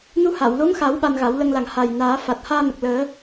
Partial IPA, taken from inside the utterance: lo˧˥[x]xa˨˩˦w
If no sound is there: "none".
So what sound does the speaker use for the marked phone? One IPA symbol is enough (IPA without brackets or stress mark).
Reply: ŋ